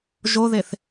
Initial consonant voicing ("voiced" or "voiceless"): voiced